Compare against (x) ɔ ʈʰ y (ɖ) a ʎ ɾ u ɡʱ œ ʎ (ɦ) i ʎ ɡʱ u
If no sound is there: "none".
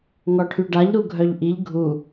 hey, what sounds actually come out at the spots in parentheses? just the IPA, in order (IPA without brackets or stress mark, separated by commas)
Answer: ŋ, ɖ, ʔ